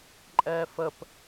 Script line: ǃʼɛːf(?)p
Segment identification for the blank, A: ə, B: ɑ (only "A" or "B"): A